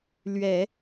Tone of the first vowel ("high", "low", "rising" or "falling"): low